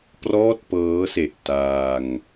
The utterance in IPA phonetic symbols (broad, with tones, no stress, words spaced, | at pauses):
prɔː˥˩t̚pɤː˦˥se˨˩ʔ taː˧ŋ